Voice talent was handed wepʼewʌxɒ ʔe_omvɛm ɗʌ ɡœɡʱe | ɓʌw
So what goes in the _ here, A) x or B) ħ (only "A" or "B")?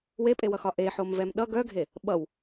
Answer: B